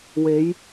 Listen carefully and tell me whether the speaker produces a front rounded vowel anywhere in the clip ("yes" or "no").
no